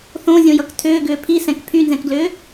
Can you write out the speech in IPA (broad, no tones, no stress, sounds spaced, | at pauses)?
θ õ zʲ õ j ʌ k tʰ ʏː ɡ ʏː pʰ i s ɛ̃ k pʰ y n z ɛ̃ k ɡ l ʏː